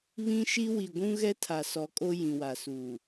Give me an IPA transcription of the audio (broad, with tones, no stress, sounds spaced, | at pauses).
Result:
β ĩ˦ ʃ i˦ w i˨ ɡʷ ũ˦ ɣ ɛ˦ tʰ a˨ s ɔ˨˦ kʼ o˦ j ĩ˨ w a˨ s uː˨